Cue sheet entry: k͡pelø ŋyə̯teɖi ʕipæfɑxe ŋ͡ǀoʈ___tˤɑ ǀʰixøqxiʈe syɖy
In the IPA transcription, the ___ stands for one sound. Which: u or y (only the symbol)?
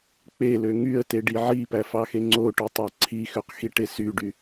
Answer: u